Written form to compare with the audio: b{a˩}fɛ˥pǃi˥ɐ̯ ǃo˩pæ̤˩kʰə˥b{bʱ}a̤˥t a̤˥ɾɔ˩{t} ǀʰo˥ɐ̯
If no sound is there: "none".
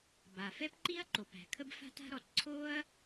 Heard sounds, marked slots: a˩, f, t

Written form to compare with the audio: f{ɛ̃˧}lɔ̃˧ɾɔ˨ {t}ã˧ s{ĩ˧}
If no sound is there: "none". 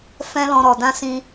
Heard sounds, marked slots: ɛ̃˦, d, ĩ˧

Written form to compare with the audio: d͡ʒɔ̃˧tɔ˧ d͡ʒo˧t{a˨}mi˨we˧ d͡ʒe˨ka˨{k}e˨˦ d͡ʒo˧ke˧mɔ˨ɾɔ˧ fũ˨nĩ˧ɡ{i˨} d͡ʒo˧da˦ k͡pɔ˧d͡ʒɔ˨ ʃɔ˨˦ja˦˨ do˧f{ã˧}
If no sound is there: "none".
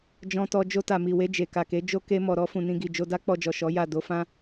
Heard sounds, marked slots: a˨, k, i˨, ã˦

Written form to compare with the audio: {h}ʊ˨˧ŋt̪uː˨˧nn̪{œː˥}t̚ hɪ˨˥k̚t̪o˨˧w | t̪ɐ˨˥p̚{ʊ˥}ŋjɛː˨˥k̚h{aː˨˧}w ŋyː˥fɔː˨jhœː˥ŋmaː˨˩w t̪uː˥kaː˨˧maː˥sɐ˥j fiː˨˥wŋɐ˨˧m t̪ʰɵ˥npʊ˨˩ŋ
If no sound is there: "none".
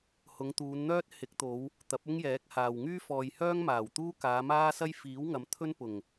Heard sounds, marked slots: h, œː˥, ʊ˥, aː˨

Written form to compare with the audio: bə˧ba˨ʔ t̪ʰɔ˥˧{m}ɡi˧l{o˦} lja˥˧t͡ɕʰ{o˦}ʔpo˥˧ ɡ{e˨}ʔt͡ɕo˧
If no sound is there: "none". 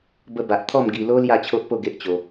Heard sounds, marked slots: m, o˦, o˦, e˦

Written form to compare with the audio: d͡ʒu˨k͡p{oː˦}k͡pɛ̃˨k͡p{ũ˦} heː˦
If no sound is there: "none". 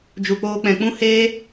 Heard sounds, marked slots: oː˧, ũ˦

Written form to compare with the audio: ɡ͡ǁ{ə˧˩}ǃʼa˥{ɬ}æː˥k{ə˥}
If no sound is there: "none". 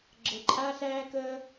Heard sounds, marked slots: ə˧˩, ɬ, əː˥

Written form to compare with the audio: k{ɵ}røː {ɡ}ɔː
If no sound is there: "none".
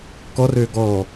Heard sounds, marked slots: ɔ, ɡ

